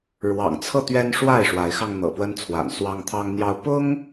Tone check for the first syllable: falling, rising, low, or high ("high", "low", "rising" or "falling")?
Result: low